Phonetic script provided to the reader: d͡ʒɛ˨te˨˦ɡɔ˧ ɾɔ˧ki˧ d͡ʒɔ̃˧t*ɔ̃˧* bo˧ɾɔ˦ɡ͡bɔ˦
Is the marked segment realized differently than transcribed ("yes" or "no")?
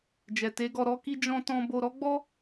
no